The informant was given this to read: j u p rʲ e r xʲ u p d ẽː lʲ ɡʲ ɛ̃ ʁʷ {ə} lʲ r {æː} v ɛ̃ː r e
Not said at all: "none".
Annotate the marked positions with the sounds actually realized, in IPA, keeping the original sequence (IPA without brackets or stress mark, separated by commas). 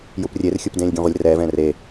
ə, ɛː